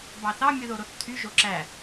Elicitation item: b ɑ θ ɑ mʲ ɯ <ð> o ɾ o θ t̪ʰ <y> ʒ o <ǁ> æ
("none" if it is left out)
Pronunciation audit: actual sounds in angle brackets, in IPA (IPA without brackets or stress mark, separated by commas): ð, y, ǁ